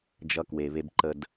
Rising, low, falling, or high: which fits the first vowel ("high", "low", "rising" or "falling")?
high